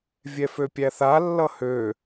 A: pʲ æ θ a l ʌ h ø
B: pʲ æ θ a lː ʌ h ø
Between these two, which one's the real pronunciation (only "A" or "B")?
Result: B